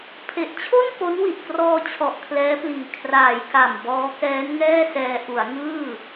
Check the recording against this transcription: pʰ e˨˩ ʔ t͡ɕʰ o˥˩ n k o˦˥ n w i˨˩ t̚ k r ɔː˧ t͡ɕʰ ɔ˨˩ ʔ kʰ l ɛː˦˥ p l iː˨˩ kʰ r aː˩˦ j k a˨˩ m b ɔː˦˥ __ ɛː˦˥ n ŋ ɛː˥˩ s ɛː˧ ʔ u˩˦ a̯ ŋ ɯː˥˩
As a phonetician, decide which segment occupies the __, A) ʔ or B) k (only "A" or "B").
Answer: B